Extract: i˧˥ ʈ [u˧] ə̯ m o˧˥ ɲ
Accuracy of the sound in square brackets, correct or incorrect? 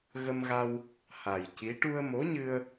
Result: correct